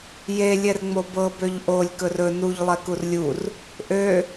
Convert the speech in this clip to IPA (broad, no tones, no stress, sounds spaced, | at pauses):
j e lʲ ɛ r ŋ͡m o b ɤ b ø ʎ ʔ o lʲ k ɵ r ɵ n u ʎ lˠ ɛ k u r lʲ u r | ʔ ø